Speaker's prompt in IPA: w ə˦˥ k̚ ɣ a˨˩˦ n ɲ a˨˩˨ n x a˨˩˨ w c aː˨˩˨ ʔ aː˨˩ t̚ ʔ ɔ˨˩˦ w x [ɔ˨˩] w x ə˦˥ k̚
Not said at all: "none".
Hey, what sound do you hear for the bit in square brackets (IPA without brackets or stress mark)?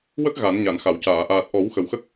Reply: ə˨˩